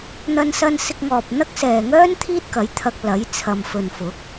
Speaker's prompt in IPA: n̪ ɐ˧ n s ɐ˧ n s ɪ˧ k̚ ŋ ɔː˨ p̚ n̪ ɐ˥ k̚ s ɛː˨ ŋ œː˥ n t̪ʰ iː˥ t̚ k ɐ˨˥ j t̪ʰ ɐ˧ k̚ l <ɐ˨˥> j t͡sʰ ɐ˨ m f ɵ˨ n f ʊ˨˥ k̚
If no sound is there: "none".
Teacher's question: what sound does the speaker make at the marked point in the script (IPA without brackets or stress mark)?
ɐ˨˥